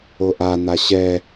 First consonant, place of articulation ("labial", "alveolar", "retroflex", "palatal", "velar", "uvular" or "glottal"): glottal